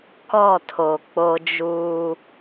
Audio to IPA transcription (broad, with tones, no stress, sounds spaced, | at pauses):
k ɔ˦˨ tʰ o˨ k͡p o˦ d͡ʒ uː˦